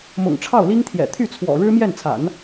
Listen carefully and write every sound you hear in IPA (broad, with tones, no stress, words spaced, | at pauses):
mʊ̰˨˩ŋʈ͡ʂʰɑ˥˩ʊ̯li˥ŋt̪ʰjɛ̰˨˩ t̪ʰy˥˩t͡sʰwɔ̰˨˩ ɻɻ̩˥mjɛ˥˩nt͡sʰa̰˨˩˦n